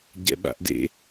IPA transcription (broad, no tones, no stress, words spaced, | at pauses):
ɟɛ̰ɓa̰ʔdḛ